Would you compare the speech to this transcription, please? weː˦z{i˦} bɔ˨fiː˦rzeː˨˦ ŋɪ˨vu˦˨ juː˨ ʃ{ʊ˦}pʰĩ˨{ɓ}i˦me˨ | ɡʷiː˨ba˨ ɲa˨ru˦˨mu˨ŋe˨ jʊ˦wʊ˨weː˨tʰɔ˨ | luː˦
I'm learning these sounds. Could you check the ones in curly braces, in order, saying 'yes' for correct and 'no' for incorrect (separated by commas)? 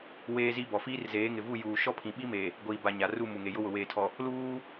yes, no, yes